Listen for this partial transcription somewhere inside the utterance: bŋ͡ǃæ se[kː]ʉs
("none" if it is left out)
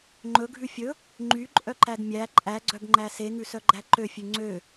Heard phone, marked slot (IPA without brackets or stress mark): ŋ